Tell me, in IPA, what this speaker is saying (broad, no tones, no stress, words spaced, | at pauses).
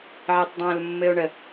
ʕɛtˤdˤə̃ːlmːɘo̯ɳə